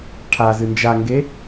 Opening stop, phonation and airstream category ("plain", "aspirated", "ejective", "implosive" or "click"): aspirated